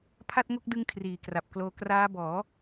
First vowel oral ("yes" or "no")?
yes